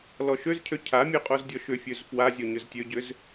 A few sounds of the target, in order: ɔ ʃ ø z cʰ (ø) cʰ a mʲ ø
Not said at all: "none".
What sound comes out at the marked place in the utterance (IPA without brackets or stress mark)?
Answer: ø